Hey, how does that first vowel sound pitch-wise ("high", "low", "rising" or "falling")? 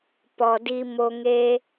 low